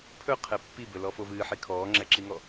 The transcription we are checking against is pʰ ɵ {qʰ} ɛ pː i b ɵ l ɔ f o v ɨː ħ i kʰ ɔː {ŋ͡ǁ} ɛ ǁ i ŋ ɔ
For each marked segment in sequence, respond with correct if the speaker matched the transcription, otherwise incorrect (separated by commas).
correct, correct